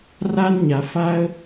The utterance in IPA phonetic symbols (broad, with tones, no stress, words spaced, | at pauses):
ra˥nɲa˧ fa˥ə̯